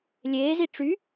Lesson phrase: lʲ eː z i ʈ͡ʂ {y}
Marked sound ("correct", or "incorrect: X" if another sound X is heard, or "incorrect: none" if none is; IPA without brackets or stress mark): correct